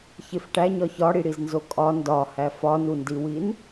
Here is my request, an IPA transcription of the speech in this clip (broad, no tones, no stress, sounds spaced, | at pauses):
ç e f ʈ æ ɲ ɒ ç ɒ ɽ i ɽ i z n z o kʼ ɒ n d ɒ h æ f ɒ n u n d i w i n